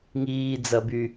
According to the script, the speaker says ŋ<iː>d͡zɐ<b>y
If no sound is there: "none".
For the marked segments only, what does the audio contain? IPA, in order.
iː, b

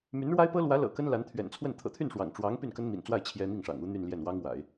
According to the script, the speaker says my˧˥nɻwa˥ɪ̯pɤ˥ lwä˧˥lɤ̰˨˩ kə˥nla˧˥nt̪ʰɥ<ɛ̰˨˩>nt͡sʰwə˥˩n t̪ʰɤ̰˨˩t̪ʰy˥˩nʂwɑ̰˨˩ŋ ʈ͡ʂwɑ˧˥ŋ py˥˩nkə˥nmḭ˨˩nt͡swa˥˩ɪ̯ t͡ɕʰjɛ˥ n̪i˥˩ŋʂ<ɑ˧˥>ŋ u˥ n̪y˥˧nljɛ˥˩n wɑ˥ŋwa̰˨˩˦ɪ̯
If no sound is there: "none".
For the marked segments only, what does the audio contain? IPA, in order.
ɛ̰˨˩, ɑ̰˨˩

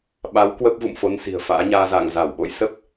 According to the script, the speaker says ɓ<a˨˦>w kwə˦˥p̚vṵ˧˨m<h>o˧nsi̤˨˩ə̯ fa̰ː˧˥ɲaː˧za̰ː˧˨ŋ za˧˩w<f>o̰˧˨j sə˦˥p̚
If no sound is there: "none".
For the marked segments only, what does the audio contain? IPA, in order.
a˨˦, f, ɓ

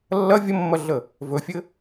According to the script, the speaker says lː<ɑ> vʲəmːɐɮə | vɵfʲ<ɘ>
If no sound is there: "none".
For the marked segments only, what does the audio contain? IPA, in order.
ɐ, ɘ

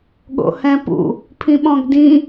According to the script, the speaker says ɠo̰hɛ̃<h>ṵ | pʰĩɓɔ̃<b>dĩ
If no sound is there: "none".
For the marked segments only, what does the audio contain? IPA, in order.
p, ɡ

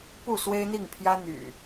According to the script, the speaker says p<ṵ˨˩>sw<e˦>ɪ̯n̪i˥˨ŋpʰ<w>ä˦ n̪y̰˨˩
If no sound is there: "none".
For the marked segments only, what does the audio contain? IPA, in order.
u˥˨, e˦, j

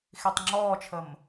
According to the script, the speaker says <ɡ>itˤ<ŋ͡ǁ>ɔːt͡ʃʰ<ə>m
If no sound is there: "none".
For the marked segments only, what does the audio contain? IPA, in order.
x, ŋ͡ǁ, ə

